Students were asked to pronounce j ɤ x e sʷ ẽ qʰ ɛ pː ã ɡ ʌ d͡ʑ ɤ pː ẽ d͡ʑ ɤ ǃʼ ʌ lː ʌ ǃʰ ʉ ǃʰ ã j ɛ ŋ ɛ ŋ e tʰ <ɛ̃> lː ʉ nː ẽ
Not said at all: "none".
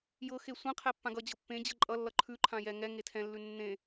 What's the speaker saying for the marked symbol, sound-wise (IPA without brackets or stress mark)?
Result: ɛ̃